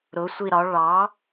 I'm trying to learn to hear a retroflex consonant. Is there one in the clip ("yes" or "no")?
yes